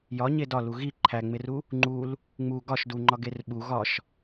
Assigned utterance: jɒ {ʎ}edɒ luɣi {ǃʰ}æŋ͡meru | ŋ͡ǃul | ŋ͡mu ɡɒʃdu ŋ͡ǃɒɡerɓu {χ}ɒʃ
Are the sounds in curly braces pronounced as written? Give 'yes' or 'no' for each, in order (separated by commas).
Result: no, yes, no